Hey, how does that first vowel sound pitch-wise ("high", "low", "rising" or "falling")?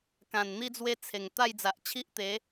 low